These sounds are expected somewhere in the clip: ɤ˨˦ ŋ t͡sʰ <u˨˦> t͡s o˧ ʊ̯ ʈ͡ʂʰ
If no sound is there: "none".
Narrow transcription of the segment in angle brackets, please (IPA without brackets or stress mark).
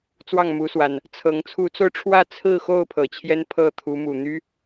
u˨˦